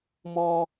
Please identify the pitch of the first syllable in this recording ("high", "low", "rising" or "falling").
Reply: high